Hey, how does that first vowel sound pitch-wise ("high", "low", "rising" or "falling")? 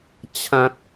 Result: high